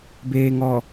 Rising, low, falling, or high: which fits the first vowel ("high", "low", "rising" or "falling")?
low